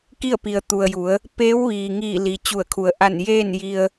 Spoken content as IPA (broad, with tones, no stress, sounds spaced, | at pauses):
k i˥˨ ə̯ p i˩ ə̯ t̪ u˩ ə̯ j u˩˧ ə̯ | p eː˧˥ w ʋ iː˩ ŋ iː˧˩ l i˩ t͡ɕ u˧˩ ə̯ kʰ u˩˧ ə̯ ʔ a˧˩ n j eː˥˨ n j i˧ ə̯